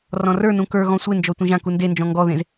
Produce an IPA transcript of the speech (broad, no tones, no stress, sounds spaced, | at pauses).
r ɔ̃ r ə˞ n ũ k ə˞ ɣ ɔ̃ sʷ e n d͡ʒ ɔ tʷ ẽ ʒ ã k u n d e n d͡ʒ ɔ̃ ŋ ɡ ɔ ð ẽ z